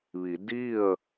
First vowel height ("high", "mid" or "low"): high